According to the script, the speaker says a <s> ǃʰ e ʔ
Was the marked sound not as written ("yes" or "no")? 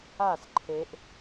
no